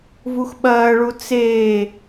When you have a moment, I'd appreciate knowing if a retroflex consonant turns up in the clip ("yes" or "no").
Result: yes